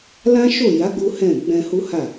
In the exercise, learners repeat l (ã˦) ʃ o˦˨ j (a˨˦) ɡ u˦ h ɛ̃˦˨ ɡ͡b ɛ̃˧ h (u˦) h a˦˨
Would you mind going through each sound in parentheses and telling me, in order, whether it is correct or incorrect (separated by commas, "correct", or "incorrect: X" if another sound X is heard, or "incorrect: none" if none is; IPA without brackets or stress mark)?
correct, correct, correct